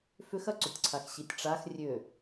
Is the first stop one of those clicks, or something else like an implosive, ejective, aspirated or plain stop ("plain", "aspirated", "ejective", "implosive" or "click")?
click